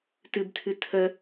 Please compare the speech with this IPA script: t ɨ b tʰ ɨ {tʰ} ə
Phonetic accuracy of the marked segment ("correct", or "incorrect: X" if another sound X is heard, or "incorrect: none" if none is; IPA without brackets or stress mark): correct